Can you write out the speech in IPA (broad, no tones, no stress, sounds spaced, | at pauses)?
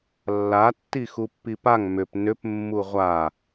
lː a tː i x u pː i p a ŋ m ʏ p n ʏ p mː u ʁʷ a